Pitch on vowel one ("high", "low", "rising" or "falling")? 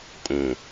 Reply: low